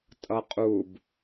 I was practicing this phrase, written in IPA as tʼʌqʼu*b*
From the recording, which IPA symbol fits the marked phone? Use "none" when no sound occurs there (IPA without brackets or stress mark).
b